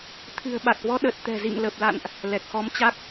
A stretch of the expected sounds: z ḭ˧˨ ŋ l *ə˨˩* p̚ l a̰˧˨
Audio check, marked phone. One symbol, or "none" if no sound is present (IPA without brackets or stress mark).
ə˨˩